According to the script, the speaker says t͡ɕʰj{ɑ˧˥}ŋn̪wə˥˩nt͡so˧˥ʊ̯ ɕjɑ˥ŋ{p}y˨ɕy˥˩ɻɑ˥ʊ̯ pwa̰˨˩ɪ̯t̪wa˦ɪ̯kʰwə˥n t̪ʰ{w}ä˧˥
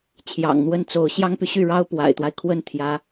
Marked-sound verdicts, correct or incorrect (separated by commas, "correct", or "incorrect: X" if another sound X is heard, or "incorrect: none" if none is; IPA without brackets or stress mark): incorrect: ɑ̰˨˩, correct, incorrect: j